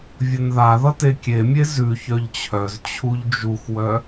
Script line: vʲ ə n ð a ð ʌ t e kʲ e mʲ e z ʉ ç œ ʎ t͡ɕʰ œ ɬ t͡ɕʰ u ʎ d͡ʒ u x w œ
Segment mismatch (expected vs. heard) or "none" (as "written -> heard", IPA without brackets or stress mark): ɬ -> z